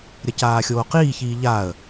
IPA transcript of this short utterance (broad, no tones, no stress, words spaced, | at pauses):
ɾʲɐcaːxʲoːqiː çiːʎaːə̯